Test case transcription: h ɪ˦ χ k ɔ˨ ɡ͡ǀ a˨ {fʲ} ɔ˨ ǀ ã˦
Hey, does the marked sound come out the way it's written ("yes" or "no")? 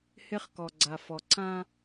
no